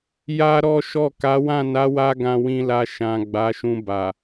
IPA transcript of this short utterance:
ja˦ ɾɔ˦ʃɔ˦˨ ka˨˦wã˦˨ na˨˦wa˧ ɡã˧wĩ˧la˧ ʃã˨ ɡ͡ba˨˦ʃũ˧ba˨

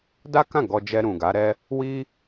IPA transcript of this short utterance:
da˦kã˦˨ ɡɔ˧d͡ʒɛ˧ ɾũ˨ɡa˨˦ɾɛ˦ | wi˦

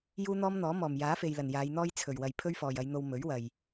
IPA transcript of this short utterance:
juː˥n̪ɔː˥mn̪ɔː˨˥ mɔː˨˩mjaː˨˥fe˨jlɐ˨˩n jaː˨˧jn̪ɔː˥j t͡sʰɵ˨˩ɥwɐ˨j pʰɵ˥ɥfɔː˨jɐ˨˧jn̪o˧w mɵ˨˥ɥwɐ˨j

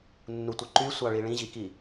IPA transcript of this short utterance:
nːutʷɯ ǃysʷɑɭi ɭĩʑiki

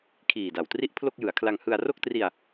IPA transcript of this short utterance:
kʰiː˨˩da˨˩wtri˥˩ʔ pʰlo˥˩k̚jɯ˩˦a̯kʰla˧ŋ hɯ˧a̯ ro˥˩k̚tri˧a̯

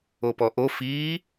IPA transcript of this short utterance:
opɔʔo fiː

